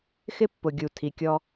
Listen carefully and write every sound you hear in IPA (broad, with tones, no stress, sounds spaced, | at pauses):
x ɪ˦ pː ʊ˨ ɡʲ u˨ tʰ i˨ kʲ ɔ˧